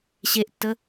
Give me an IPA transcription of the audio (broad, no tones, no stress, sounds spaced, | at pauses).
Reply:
ɕ e ʔ tː ə